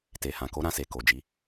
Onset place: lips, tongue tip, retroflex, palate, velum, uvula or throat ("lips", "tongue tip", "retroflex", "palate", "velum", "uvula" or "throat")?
tongue tip